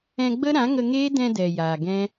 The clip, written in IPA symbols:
ɛ̃˧ ɡ͡b ə˦ ɾ ã˨˦ ŋ ə˧ ŋ eː˦ d ɛ̃˧ d ɛ˨ j aː˨ ɡ ɛ̃˦

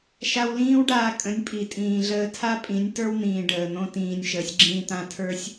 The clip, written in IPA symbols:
ʃ a˧ w l ĩː˦ w ɖ aː˧ kʼ ə̃˨˦ nʲ pʼ i˨ tʼ ĩː˨ ɮ əː˧ tʰ a˦ pʼ ĩ˨˦ nʲ t ə˞˦ w n̪ ĩː˨ ɖ əː˨ n̪ õ˦ t ĩː˧ nʲ ʃ əː˨ sʲ ɡ͡ǁ ĩː˧ t̪ ã˦˨ tʰ ə˞˦ sʲ

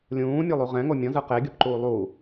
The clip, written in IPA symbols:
lʲ ũː mʲ ɛ lˠ u ʁ ɛ̃ ŋ o mʲ ɔ̃ z ɯ q e ɡʲ ɤ p ǃ uː lˠ u

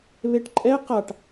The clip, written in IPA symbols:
β e ʈ ǃʼ ɛ q a ʈ

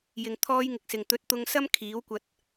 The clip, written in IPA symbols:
j ɪ˨ ŋ t̪ʰ ɔː˥ j ŋ ɪ˧ k̚ s ɪ˨ ŋ t̪ ɵ˨˥ t̚ t̪ ʊ˧ ŋ s ɐ˥ m kʰ iː˨˥ w kʷ ɐ˧ t̚

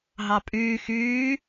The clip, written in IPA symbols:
ɦ ɑ pʼ yː x yː

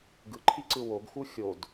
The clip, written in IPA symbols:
ɡ ɯ ǃʰ i ǀ ɯ w o ɡ x u xʲ o d

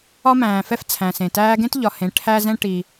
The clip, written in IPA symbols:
ɒ˧ m æ̃ː˩ f ɛ˧ f t͡sʰ æ̃˩ s ẽ˩ t æː˧ ɡ ẽ˧ t ʎ ɒ˩ h ẽ˩ ʈʰ æ˧ z ɛ̃˧ ʈ i˩

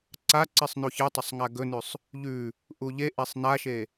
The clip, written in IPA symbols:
ǀ a ǀ i sˤ n u ç ɨ tˤ ɵ sˤ ŋ a ɡ ɵ n ʉ sˤ | ʎ ʉ | ʔ u ʎ e ʔ e sˤ n a ʃ e

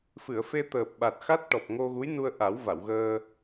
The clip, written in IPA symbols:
f ɨ˨˩˨ ə̯ f e˧ t̪ əː˨˩ p̚ ɓ a˨˩ t̚ x a˦˥ t̚ ʈ ɔ˨˩ p̚ ŋ o˧ ɣ u˧˥ j n u˧ ə̯ ʔ a˨˩˦ w v a˨˩˨ w ɣ əː˧

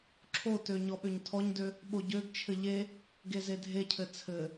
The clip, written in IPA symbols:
ǁʰ o t ø ɲ ɔ ɓ ø ɲ tʰ ɔ ɲ d ø | ɓ o ɟ ø ɡ t͡ʃʰ ɘ ʎ e | ɡ e z e dʱ e cʰ ɘ t͡sʰ ɘ

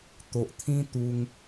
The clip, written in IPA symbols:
t̪ o˨ ʔ t̪ʰ ĩ˧ t̪ u˧ ŋ

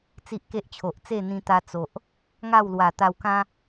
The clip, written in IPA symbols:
t͡s i˦ ʔ k e˦ ʔ t͡ɕʰ o˨ ʔ t͡s e˥˧ n̪ ĩ˧ t̪ a˧ t͡s o˨ ʔ | ŋ a˥˧ w l w a˨˩ t̪ a˧ w k ã˦

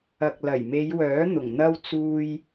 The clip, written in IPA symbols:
ɐ˨ k̚ l ɐ˨˩ j m e˨˧ j w œː˨˥ n̪ ʊ˨˩ ŋ n̪ ɐ˥ w t͡s uː˧ j

